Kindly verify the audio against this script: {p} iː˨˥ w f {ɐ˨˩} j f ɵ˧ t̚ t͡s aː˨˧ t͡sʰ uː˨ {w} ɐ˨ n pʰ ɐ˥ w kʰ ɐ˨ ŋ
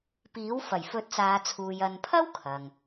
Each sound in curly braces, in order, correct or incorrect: correct, correct, incorrect: j

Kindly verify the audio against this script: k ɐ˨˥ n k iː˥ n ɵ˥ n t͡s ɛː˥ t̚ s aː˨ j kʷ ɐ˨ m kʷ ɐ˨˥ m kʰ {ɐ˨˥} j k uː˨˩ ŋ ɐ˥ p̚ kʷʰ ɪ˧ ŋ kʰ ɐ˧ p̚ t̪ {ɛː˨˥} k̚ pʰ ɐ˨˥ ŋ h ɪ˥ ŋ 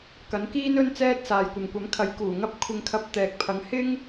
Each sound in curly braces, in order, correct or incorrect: correct, incorrect: ɛː˨

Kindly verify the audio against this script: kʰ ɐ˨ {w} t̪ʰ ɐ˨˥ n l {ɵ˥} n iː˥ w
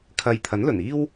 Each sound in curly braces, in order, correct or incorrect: incorrect: j, incorrect: ɵ˨˩

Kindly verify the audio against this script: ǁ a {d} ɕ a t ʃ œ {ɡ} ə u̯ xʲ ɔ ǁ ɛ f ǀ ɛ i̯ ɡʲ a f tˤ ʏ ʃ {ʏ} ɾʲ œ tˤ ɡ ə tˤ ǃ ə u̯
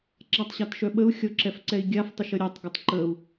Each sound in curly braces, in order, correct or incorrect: incorrect: tˤ, incorrect: ɓ, incorrect: ə

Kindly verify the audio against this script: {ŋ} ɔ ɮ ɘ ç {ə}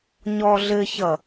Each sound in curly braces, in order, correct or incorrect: incorrect: ɲ, incorrect: ʌ

